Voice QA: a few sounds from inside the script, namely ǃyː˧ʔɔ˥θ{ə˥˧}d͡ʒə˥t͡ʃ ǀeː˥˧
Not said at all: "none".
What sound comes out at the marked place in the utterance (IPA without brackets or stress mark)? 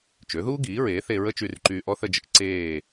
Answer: ə˥˧